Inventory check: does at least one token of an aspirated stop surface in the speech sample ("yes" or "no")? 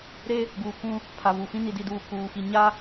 yes